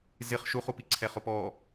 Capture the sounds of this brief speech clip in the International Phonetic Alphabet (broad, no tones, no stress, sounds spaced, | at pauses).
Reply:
z ɪ χ ʃ u χ u p i ǀʰ ɛ χ ʊ p ɔ